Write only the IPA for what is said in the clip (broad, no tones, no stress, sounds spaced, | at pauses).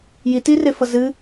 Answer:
j i t i r e f ʌ z ɨ